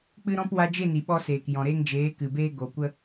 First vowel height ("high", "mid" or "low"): high